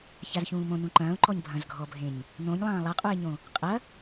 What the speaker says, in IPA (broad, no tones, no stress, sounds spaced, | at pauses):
ç a z ç ũː m õ n ũ ǃ ɐ̃ː ʊ̯ ǃ ɔ ɲ bʱ ɐ̃ z ɡʱ ɔ bʱ ẽ ɲ | n õ ɲ lˠ ɐ̃ː lˠ a qʼ u ɪ̯ ɲ õ | qʼ ɐ